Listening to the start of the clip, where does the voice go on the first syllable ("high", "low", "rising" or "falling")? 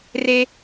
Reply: high